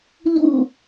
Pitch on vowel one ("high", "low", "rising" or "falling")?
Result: falling